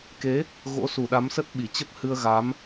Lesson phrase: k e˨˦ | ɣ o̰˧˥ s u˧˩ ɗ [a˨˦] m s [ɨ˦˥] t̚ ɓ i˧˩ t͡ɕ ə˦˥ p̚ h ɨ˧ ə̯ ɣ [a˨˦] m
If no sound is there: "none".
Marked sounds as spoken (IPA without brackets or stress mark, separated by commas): a˨˦, ə˦˥, a˨˦